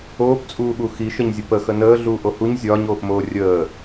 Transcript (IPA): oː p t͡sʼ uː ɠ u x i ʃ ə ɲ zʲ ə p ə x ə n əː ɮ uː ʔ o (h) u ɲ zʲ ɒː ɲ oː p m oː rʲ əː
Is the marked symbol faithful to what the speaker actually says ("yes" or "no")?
yes